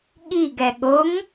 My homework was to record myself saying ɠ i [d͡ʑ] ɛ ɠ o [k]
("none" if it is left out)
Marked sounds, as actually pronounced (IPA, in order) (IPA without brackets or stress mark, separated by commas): ɡ, ŋ